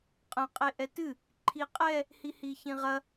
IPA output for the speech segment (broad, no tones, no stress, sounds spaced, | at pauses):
qʼ ɐ̃ qʼ e ʔ ɛ t ɨ | ǃʰ i qʼ ɛ | h i h i ç ĩ ʁ ɐ